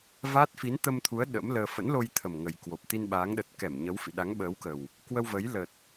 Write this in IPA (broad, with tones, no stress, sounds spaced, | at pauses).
v aː˦˥ t̚ f i˨˦ n t̪ ə˧ m t̪ʰ u˨˦ ə̯ ɗ ə̰˧˥ m l əː˧ f ə̰˧˥ n l o˧ j t̪ʰ ə˨˩ m ŋ ə˨˩ j k w o˨˩ p̚ t̪ i˧ n ɓ aː˨˦ ŋ ɗ ə˨˩ t̚ k ɛ˧˩ m ɲ ə˨˦ w f ḭ˧˨ ɗ a˨˦ ŋ ɓ əː˨˦ w k ə˨˩ w | k w ə˧ w v ə˨˦ j l ə˨˩ t̚